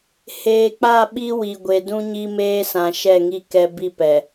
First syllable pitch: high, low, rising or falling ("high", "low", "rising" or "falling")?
low